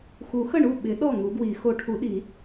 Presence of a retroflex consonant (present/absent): present